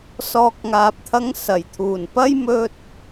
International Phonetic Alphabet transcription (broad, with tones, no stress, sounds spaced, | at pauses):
s ɔː˨ k̚ ŋ aː˨ p̚ t̪ʰ ɐ˧ ŋ s ɐ˨˩ j t̪ʰ uː˨˩ n p ɐ˥ j m ɵ˧ t̚